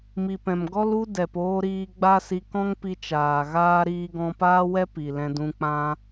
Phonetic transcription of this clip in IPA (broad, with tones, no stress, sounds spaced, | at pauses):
m i˨ p ɛ̃˨ m ɡ ɔ˦ l u˦ d ɛ˨ p oː˧ ɾ iː˧ ɡ͡b a˦ s i˧ k ɔ̃˦ ŋ p i˧ t͡ʃ aː˨ ɣ aː˦ ɾ iː˧ ɡ ɔ̃˧ p aː˦ w ɛ˦ p i˨ l ɛ̃˧ d ũ˧ k͡p ã˦